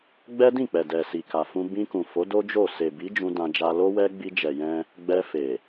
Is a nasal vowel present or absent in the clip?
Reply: present